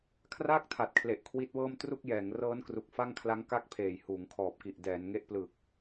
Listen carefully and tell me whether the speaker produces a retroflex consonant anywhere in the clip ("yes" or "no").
no